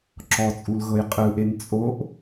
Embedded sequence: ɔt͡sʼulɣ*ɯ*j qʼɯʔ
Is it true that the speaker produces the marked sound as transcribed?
no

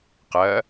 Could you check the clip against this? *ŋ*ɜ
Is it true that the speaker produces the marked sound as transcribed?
no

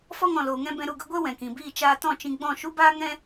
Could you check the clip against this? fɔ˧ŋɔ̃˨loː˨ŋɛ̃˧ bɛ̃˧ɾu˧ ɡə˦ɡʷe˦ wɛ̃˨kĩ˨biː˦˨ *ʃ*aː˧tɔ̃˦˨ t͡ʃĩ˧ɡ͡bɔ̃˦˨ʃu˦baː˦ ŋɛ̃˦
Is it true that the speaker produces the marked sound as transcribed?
no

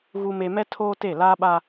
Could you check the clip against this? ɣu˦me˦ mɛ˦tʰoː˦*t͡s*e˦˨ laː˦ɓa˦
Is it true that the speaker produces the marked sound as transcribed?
no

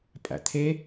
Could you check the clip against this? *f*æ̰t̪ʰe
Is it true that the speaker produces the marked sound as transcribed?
no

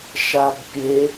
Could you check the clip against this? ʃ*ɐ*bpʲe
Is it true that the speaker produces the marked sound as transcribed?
no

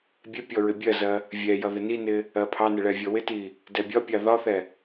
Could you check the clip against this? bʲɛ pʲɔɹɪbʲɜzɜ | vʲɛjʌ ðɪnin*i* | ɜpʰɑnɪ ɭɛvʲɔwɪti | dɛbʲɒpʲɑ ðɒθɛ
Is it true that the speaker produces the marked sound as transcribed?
no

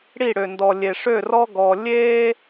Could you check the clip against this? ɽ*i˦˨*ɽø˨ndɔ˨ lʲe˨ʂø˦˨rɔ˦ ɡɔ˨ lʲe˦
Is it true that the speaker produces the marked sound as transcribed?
yes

